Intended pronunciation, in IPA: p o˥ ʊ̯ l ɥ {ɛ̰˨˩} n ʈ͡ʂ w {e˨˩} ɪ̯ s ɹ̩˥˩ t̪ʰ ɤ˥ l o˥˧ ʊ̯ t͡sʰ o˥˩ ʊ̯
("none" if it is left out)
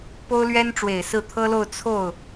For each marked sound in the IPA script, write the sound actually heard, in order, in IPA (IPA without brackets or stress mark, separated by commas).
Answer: ɛ˥, e˨˩